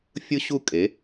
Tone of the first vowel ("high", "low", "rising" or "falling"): high